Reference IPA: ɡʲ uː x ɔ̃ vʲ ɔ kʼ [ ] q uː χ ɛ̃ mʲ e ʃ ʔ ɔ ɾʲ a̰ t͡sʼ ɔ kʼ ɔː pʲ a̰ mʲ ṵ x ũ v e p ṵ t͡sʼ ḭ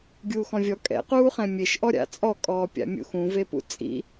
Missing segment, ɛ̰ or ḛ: ɛ̰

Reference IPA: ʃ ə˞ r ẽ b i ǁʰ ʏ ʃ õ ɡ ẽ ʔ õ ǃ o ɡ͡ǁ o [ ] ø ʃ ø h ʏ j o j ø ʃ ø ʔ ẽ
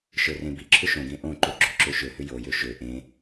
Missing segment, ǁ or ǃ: ǁ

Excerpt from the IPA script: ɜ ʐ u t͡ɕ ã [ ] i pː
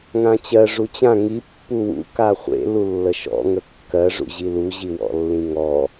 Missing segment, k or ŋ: ŋ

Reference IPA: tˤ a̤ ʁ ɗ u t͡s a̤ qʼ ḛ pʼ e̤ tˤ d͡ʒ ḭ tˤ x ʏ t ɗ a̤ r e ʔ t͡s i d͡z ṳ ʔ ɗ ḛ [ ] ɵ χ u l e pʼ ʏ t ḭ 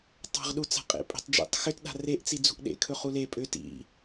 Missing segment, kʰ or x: kʰ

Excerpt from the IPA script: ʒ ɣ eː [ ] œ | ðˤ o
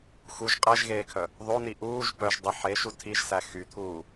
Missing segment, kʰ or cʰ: kʰ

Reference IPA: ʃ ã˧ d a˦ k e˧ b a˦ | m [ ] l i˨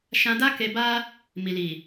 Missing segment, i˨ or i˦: i˨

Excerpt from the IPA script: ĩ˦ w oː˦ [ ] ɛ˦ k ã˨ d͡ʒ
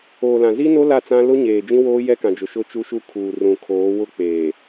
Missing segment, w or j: j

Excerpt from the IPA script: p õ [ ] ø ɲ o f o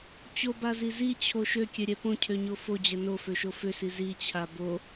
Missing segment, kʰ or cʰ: cʰ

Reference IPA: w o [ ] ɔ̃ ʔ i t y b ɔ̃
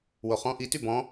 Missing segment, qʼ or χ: χ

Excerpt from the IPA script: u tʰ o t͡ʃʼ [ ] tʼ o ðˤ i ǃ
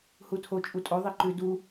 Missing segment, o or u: u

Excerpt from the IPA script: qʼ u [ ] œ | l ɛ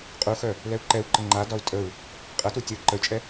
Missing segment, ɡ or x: x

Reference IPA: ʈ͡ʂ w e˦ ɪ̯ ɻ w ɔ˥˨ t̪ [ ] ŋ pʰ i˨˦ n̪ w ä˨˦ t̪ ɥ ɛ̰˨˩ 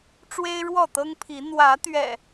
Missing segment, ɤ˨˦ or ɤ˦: ɤ˦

